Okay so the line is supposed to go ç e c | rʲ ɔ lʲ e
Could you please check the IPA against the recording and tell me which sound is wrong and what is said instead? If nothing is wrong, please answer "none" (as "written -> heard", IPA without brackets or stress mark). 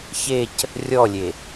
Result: none